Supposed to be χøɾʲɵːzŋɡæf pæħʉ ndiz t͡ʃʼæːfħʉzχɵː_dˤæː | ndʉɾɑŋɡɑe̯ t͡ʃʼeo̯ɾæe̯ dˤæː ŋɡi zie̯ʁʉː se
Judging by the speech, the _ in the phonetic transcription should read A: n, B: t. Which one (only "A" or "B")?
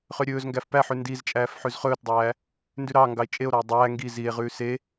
B